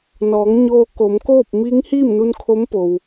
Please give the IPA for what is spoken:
n ɔː˩˧ ŋ ɲ oː˧ k o˩˧ m k oː˥˨ p̚ m iː˧˥ ŋ h iː˥˨ m n u˧ n kʰ o˧˥ m p o˩ w

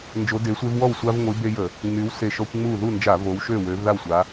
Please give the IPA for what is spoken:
n d͡ʒ o˨˦ d e˨˦ sʷ e˦ v w ɔ˥˨ w sʷ a˦ v ŋʷ i˨˦ b e˦ j ə˧˩˧ | ŋ͡m y˨˦ w s e˧˩ ʃ ɔ˦ kʷ ŋ͡m u˥˨ ð u˥˨ n d͡ʒ a˧˩˧ v o˨˦ w ʃ ø˥˨ w ø˨˦ v ð a˥˨ w sʷ a˨˦

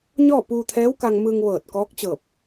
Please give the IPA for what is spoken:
ɲ ɔː˥˨ p uː˧ t̪ʰ ɛː˧˥ w k a˧ ŋ m ɯː˧ ŋ ʋ ɤː˧˩ t̚ k ɔː˧˥ k̚ t͡ɕ ɤː˧˩ p̚

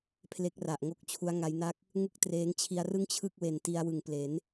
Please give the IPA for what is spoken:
pʰ l e˦˥ k̚ r a˨˩ ʔ ŋ o˥˩ k̚ t͡ɕʰ u˦˥ a̯ ŋ a˦˥ j n a˥˩ k̚ | ŋ ɯ˥˩ k̚ t r eː˦˥ ŋ t͡ɕʰ i˦˥ a̯ r ɯ˥˩ ŋ t͡ɕʰ ɯ˥˩ k̚ w e˨˩ n t i˧ a̯ w ɯ˨˩ ŋ p l e˩˦ n

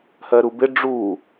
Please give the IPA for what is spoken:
h ɜ ɾ u b ɪ ɖ͡ʐ u

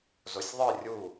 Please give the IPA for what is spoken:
z o sʲ ðˤ ɨ rʲ u

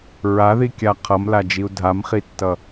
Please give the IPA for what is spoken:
ɹ a ð i kʲ a qʰ ʌ m l a d͡ʒ i u̯ dʱ a m χ i tː ʌ

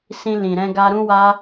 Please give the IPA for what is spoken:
s ĩ˧ l ĩ˨ ɾ ɛ̃˧ ɡ a˧ ɾ ũ˦ w a˦

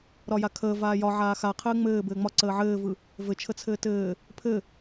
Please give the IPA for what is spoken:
ɾ ɒ j a kʰ əː v aː j ɒ ʕ aː x a qʰ ɘː ŋ͡m ɘː b ɘː ŋ͡m ɒ ǀ əː ʕ ɘː v ɯ | v ɘ t͡ʃʰ ə t͡sʰ ɘː t ɘː | pʰ ɘ

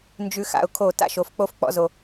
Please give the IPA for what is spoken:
n d͡ʒ ʉ˧ x a̰˧ ʊ̯ kʰ o˦˨ t a̰˦ ʃ o˨˦ f k͡p o˦ f k͡p ɔ̰˦ z o˧

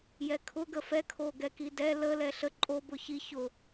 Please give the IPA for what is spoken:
j ɛ kʰ ʊ ɡ ə f ɛ kʰ o ɡ ɛ k i d ɛ l ə l ɛ ɬ ə ǃʼ o b ʊ ç i ç ʊ

